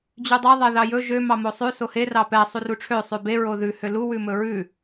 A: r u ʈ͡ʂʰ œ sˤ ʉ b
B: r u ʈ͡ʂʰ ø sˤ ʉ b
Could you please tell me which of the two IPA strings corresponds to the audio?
B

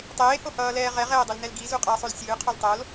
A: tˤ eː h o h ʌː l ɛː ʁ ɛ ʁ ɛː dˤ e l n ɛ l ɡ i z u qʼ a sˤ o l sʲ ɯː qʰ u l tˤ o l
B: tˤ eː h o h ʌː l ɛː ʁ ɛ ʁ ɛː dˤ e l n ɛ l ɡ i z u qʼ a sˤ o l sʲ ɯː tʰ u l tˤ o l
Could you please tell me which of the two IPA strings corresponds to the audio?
A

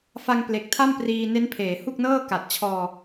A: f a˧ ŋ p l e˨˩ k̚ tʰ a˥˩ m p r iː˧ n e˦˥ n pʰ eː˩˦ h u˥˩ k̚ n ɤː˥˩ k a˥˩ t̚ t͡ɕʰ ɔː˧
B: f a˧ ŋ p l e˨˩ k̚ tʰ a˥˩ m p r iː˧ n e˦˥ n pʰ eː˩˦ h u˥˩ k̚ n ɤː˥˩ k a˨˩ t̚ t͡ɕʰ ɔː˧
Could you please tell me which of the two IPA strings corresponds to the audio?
B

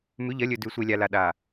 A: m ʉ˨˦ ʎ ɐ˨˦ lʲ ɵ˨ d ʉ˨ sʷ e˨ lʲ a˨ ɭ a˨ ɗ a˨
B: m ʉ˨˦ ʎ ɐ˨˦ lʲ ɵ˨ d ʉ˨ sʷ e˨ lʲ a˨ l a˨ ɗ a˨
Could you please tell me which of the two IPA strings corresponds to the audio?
B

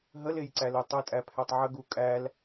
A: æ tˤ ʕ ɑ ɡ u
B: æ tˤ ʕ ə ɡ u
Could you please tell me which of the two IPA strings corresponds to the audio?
B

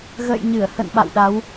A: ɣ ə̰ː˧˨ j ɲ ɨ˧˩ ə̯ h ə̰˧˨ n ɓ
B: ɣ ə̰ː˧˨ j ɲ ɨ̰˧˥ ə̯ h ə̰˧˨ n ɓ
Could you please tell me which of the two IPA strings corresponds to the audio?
A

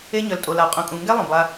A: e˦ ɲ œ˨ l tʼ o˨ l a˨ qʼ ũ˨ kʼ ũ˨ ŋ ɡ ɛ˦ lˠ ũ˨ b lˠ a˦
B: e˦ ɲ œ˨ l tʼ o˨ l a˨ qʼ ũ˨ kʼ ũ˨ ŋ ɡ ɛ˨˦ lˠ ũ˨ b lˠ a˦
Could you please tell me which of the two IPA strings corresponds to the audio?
A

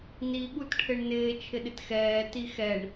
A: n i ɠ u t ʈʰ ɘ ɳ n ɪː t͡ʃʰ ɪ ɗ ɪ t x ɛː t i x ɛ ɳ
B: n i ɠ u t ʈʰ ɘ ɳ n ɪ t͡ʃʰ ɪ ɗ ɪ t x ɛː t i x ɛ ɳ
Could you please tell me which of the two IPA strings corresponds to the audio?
A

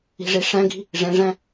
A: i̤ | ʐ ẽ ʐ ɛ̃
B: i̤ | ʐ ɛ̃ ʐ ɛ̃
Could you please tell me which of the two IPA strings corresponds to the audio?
A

